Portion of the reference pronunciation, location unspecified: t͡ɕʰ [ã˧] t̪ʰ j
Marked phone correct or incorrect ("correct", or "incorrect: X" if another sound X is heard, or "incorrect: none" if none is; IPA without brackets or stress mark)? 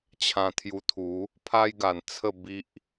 correct